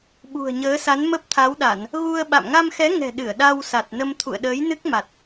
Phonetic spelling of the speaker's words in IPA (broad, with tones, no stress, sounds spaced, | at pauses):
ɓ ṳ˨˩ ə̯ ɲ əː˨˦ s a˨˦ n m ə˦˥ p̚ t̪ʰ a˨˦ w ɗ a˧˩˨ n | ɣ u˧ ə̯ ɓ a̰˧˨ m ŋ a˧ m x ɛ˨˦ ŋ ɛ̤˨˩ ɗ ɨ˧˩ ə̯ ɗ a˧ w s a˨˩ t̚ n ə˧ m t̪ʰ ṵ˧˨ ə̯ ɗ əː˨˦ j n ɨ˦˥ k̚ m a˨˩ t̚